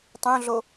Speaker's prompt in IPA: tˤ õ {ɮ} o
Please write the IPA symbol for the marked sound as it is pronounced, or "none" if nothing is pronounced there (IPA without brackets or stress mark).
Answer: ɮ